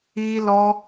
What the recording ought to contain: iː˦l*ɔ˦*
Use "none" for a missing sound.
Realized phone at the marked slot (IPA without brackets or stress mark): ɔ˦